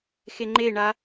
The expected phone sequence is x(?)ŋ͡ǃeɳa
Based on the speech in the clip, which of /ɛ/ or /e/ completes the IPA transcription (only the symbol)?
e